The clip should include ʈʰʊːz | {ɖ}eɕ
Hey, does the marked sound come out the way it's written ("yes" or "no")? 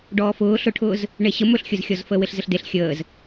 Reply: no